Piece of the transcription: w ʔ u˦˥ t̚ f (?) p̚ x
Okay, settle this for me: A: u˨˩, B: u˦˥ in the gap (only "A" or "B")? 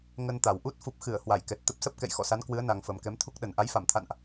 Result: A